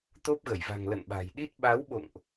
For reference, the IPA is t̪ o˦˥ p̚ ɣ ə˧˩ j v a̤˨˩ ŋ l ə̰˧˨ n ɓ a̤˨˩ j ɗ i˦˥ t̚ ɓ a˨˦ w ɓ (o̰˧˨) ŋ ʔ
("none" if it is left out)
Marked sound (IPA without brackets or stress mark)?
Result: o̰˧˨